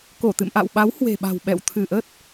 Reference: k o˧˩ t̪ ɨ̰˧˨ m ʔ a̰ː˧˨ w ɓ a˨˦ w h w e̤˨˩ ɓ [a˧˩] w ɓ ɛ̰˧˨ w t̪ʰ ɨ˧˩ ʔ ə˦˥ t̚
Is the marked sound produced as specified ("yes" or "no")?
no